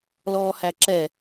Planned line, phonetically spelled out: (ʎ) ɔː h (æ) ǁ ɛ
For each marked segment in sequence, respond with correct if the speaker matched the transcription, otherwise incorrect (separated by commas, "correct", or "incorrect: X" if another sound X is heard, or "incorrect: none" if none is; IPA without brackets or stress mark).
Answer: incorrect: l, correct